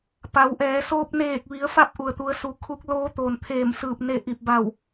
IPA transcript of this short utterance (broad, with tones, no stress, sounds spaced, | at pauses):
p a˩˧ w ʔ ɛː˩˧ s oː˧ p̚ n eː˧˩ k̚ ʋ i˩˧ ə̯ f a˥˨ p̚ ʔ u˩ ə̯ t̪ u˩˧ ə̯ s u˩ kʰ u˧˥ k̚ l oː˧˥ t̪ oː˩ n t̪ʰ eː˧˩ m s ɯː˧˩ p̚ n e˧˩ ʔ i˧˩ p̚ b a˧˩ w